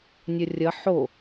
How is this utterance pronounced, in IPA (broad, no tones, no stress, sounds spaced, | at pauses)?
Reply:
nʲ ʌ rʲ ʌ ħ o